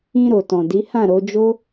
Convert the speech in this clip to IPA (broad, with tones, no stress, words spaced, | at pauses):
ĩ˧ɾo˨tɔ̃˨ di˨˦hã˦˨ɾo˨˦ d͡ʒo˦